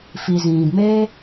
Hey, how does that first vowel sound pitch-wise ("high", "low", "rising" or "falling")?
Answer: low